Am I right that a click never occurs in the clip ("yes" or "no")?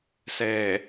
yes